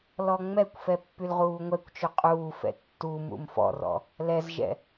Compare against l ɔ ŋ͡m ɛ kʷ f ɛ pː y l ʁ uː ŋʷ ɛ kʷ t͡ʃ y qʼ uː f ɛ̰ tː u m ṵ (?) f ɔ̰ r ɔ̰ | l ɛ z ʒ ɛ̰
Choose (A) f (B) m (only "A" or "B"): B